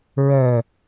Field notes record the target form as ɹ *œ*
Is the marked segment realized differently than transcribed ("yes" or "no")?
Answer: no